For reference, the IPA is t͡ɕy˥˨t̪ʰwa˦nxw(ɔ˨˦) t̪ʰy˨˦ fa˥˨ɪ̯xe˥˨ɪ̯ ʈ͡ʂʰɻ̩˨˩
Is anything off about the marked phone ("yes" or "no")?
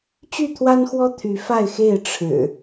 yes